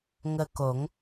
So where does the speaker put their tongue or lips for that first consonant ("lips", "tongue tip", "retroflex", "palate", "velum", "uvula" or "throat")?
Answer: velum